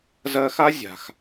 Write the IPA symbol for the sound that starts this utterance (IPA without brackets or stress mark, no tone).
z